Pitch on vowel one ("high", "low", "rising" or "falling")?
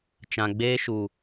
low